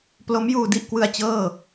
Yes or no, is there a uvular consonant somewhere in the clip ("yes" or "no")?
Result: no